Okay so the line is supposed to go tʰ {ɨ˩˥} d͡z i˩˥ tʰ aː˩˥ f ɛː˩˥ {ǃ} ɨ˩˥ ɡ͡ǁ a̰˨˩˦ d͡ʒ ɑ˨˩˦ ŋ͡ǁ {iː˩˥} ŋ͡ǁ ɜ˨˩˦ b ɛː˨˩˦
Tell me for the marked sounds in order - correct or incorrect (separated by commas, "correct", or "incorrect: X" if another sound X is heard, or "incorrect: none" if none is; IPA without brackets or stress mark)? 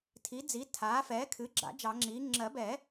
incorrect: i˩˥, incorrect: kʰ, correct